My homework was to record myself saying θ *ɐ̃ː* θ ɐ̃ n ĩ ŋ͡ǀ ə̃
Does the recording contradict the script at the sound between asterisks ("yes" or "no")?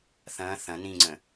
no